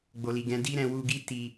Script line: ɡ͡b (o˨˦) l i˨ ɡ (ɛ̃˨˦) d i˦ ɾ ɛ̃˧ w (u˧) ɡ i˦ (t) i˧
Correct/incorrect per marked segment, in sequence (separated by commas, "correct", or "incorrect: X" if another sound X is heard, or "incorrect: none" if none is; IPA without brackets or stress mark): incorrect: o˨, correct, correct, correct